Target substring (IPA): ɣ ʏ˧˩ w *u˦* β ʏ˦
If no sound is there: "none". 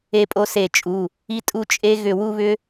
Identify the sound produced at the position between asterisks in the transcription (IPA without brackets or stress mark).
u˦